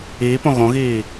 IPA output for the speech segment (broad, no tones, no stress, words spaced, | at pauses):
iːpõ ɣõɣiː